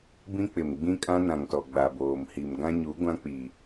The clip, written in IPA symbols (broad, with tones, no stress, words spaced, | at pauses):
bĩ˦k͡pɪ˨m ɡ͡bĩ˦kʼã˦nã˨ŋtɔ˨ ɡ͡ba˨boː˨mhi˨m ɡã˦ɲu˨˦ ɡʷã˦k͡pi˨